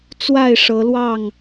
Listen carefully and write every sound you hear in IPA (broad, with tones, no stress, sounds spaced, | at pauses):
t͡s w a˥˨ ɪ̯ ʂ ɤ˨˦ l w ɑ˥˨ ŋ